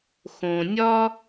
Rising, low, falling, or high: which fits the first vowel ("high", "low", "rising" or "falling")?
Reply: low